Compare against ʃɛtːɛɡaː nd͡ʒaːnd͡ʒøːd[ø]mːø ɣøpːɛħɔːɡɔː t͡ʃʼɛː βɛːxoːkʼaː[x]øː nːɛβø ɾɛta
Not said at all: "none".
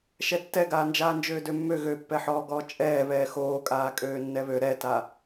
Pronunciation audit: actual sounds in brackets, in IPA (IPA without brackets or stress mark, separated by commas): ø, kʼ